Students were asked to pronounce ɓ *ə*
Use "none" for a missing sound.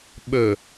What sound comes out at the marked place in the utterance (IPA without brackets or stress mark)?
ɵ